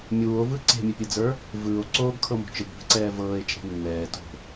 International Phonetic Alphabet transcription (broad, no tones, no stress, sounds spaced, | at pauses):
mʲ uː o̯ v ɯ ǀ e̤ mʲ e pʲ ɯ d͡z ə˞ | v ɯː o̯ ǀ oː ɡ kʰ ɤ m o̤ t͡ʃ ɯ ɡ b e̤ ǀ ɛː v ɤː e̯ t͡ʃʼ e̤ nː ɛː t o̤